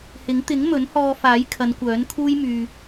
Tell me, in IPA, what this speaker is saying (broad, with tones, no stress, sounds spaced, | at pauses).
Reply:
h ɪ˨˥ ŋ t̪ ɪ˨˥ ŋ m ɵ˨˥ n h ɔː˧ f aː˨˥ j kʰ ɐ˨˧ n kʷ œː˨˥ n kʰ uː˥ j m yː˨